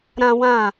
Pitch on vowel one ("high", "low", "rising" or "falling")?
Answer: high